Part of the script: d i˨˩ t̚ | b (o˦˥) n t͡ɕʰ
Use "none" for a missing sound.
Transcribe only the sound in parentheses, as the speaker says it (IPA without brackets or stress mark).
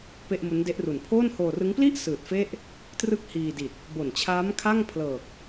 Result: o˨˩